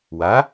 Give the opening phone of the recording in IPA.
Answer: w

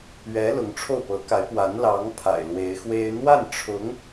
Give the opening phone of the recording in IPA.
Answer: ɥ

